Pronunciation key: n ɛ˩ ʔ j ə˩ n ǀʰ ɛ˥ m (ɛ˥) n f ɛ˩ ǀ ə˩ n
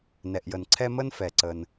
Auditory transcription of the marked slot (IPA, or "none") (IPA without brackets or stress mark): ə˥